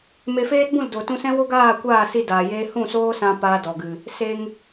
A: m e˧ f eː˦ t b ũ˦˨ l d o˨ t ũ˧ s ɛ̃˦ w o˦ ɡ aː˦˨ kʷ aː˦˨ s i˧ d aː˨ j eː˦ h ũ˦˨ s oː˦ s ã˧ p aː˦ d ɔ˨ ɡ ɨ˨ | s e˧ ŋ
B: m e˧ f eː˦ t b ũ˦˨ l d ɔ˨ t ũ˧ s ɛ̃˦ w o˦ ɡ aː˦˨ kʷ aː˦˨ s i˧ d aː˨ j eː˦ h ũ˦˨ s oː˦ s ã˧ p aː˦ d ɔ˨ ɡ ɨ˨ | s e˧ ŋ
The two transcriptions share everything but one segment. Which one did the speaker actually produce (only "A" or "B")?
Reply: A